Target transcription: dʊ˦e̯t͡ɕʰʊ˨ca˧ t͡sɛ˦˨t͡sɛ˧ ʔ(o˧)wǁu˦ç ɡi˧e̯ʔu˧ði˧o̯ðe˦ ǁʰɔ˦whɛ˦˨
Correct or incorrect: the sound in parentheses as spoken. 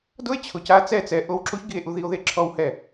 correct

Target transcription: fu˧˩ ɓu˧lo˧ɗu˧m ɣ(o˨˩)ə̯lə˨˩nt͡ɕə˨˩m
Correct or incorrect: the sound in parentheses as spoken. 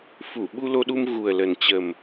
incorrect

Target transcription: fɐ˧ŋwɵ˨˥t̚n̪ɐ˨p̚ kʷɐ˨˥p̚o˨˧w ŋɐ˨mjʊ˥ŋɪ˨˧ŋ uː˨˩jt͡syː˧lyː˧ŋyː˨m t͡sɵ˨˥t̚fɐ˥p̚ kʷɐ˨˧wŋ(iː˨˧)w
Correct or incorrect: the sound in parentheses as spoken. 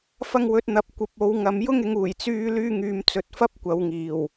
incorrect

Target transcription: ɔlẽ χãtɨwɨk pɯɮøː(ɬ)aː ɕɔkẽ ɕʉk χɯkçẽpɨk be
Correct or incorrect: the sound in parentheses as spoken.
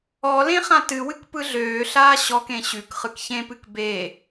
correct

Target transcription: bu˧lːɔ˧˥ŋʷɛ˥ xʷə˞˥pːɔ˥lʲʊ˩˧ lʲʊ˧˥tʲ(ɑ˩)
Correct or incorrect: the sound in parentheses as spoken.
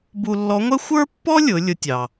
correct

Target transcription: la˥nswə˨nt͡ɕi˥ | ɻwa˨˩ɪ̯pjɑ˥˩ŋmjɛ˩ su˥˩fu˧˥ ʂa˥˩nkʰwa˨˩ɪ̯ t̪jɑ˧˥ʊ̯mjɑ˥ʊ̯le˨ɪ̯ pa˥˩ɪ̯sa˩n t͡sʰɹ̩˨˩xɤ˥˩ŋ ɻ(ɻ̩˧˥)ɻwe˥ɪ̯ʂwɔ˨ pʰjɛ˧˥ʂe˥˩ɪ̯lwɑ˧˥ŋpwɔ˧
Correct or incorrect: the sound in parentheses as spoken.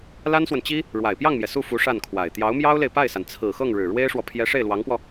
incorrect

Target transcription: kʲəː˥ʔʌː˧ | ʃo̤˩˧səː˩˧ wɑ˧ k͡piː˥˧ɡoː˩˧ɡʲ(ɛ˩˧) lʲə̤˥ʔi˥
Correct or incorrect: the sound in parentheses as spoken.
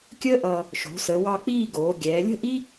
incorrect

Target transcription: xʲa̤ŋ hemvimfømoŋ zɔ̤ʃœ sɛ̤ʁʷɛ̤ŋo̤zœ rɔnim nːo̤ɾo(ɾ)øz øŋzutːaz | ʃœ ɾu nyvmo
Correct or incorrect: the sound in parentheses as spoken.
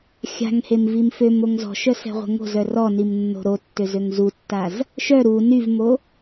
incorrect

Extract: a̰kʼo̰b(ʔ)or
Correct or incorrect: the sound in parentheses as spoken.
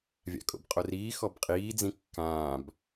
incorrect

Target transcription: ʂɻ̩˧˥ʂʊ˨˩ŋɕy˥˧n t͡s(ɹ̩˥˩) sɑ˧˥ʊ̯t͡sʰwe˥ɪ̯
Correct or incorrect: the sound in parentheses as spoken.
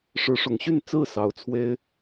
correct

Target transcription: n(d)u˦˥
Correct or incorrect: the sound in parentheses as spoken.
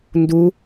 correct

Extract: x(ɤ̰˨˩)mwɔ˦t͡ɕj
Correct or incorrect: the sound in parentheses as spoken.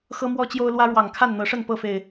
incorrect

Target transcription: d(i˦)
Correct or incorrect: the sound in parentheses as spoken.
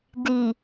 incorrect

